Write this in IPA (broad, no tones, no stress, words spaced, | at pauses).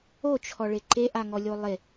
ot͡ʃʰɔɭe ǃeʔaŋɔlʲo lˠe